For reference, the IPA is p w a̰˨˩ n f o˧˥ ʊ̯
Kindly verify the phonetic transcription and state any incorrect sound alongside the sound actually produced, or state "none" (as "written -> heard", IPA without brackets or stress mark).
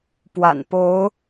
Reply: f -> p